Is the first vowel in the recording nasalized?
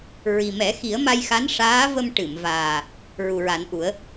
no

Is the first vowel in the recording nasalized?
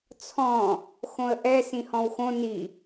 yes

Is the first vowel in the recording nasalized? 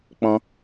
yes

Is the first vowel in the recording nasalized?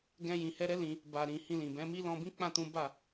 yes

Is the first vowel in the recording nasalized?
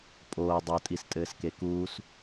no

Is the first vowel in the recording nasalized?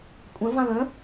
yes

